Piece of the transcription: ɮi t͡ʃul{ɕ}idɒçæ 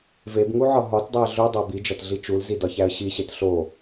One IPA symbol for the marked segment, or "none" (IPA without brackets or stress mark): z